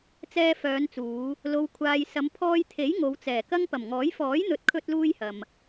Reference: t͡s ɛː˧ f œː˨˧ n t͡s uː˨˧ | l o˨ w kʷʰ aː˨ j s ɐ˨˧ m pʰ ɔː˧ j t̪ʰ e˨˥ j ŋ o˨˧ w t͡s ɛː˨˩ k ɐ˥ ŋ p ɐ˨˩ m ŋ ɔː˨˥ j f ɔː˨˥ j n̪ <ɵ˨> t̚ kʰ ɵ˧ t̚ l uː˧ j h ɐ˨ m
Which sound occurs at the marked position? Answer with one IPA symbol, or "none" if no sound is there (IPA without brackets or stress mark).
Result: ɵ˨